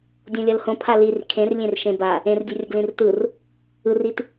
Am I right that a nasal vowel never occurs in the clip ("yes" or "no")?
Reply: no